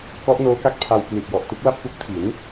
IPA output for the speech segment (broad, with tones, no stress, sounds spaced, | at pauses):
k ɔ˦˥ ʔ n oː˦˥ k a˦˥ k̚ pʰ a˧ w k l i˨˩ t̚ j ɔ˨˩ ʔ t u˦˥ k̚ l a˥˩ p̚ f u˦˥ k̚ tʰ i˩˦ n